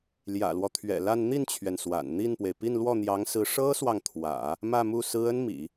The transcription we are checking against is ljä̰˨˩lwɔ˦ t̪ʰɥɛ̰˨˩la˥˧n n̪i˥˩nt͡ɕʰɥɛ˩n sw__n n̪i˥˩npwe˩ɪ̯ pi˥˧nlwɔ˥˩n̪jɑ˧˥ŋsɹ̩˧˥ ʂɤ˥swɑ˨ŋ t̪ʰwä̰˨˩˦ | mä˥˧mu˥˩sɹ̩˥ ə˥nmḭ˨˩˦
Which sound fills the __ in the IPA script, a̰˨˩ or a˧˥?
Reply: a̰˨˩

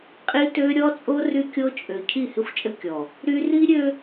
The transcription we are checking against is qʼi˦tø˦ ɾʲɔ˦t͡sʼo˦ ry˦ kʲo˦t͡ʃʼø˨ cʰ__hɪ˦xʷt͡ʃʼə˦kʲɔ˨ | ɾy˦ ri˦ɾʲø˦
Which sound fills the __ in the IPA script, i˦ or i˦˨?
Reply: i˦˨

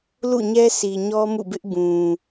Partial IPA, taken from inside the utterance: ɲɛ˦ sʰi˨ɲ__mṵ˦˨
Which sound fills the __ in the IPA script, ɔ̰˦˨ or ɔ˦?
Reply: ɔ˦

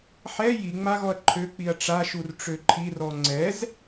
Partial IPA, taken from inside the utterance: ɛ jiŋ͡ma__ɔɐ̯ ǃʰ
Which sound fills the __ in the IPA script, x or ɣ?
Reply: ɣ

